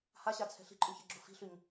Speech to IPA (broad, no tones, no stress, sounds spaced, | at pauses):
h a ɕ a t͡sʰ ɛ̤ ɬ i̤ ǃʼ ʉ ç ɛ ɡ͡ǁ u f i̤ ɬ ʉ ɲ